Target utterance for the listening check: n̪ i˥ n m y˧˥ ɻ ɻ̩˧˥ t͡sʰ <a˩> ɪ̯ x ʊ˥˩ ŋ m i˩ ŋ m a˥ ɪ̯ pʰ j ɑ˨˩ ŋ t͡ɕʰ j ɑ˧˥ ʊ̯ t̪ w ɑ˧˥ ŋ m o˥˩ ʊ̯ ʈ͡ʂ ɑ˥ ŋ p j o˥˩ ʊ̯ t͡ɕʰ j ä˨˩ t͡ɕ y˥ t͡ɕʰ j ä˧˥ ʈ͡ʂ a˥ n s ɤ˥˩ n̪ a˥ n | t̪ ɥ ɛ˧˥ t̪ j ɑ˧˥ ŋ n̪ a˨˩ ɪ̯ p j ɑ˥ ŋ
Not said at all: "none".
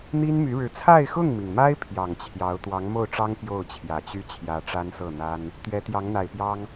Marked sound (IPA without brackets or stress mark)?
a˥˧